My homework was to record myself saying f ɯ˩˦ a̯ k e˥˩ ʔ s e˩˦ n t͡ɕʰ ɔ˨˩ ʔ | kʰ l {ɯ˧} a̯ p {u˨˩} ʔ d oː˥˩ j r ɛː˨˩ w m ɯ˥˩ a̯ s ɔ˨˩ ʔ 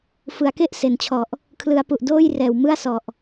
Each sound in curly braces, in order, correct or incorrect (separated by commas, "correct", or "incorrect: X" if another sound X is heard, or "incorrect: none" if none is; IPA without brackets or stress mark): incorrect: ɯ˩˦, correct